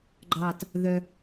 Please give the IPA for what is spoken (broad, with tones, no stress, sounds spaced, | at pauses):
ɡ͡ǃ ɑː˨˩ t | ð œ˧